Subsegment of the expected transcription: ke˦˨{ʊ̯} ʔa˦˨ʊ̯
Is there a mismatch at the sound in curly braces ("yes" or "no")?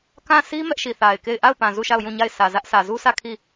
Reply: yes